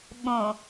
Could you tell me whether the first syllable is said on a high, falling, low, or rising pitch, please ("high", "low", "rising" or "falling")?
low